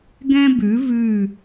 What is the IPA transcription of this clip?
ɡ ɛ̃˦ b ʉ˨˦ v ʉ˦˨

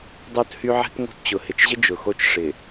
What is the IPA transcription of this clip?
dˤ o˦ t h y˦ ʕ ɛ̤˦ t ŋ o̤˦˨ t t͡ɕ ʊ˨ h ɪ˨ t͡ʃ ʑ ɪ˦ d͡ʒ ʊ˨ x o˦ t͡ʃ ʂ ɪ˨

